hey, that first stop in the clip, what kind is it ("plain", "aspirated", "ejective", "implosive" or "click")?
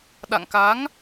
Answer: implosive